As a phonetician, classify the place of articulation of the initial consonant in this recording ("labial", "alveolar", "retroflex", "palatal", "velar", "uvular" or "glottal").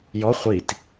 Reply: palatal